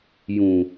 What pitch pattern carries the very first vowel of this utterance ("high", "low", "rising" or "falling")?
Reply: low